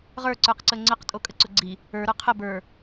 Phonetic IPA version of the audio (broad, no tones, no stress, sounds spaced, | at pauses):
ʁ ə˞ ǀ ə˞ q ǀ ə ŋ͡ǀ ə q tʼ o kʼ ə ǀ ʊ ɡ͡ǀ i | ə˞ ɾ ə˞ qʰ ə b ə˞